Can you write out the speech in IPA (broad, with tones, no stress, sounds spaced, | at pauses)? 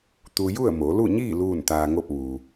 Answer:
t̪ u˧ j u˥˨ ə̯ m o˩˧ l u˥˨ ɲ iː˥˨ l uː˥˨ n t̪ aː˧ ŋ o˥˨ p̚ ʋ uː˩